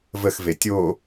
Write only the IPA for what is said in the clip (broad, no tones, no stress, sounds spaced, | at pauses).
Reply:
v ə x v e tʲ o